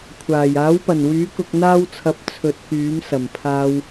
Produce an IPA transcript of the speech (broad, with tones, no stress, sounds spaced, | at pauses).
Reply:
kʷʰ aː˨˩ j aː˨˥ w p ɐ˨˩ n w yː˨˥ k ʊ˧ k̚ n̪ aː˥ w t͡sʰ ɐ˧ p̚ t͡sʰ ɵ˨ t̚ k yː˨˥ m s ɐ˨˩ m pʰ aː˧ w